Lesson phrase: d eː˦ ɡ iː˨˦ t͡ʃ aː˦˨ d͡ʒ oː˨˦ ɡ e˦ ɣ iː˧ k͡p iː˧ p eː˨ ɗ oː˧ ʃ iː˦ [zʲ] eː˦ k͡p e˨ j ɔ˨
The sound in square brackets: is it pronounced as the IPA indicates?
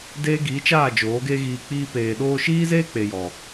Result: no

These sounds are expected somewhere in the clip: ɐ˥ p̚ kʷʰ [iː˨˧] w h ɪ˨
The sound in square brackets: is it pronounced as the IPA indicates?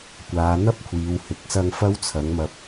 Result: yes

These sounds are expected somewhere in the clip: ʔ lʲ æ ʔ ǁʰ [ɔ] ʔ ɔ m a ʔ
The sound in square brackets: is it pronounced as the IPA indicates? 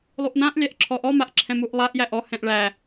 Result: yes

